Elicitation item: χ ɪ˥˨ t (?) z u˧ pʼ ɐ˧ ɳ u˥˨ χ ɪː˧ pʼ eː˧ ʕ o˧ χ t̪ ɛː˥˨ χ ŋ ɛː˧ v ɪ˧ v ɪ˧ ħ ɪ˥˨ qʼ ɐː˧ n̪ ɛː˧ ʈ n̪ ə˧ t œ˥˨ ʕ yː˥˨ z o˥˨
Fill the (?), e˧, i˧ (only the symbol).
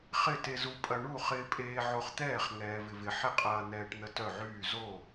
e˧